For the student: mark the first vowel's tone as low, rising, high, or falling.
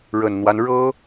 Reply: low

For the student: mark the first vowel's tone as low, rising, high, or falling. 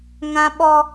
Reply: high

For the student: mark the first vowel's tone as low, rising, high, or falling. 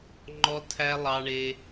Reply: high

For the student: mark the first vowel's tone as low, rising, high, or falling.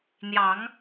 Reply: rising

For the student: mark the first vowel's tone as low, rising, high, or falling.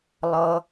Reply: high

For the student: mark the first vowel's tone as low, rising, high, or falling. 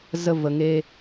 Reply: high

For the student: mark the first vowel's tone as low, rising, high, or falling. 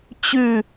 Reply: falling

